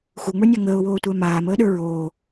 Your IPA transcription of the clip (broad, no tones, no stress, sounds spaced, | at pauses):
x u ŋ͡m ə˞ nʲ a ŋ əː ʊ̯ w oː tʷ æ m aː m əː ɗ ə˞ ɹ oː